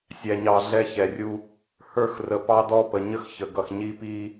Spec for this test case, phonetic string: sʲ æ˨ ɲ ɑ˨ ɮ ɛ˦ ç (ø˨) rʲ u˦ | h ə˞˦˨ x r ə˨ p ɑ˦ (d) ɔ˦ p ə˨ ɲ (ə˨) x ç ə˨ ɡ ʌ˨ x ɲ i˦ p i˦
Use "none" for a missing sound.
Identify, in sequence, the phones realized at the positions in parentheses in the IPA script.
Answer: ɛ˨, d, ə˦

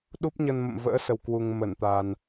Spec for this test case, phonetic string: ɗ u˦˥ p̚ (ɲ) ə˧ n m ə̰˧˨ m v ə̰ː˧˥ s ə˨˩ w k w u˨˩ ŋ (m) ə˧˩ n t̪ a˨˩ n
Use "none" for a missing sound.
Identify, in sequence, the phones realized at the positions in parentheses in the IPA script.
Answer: ɲ, m

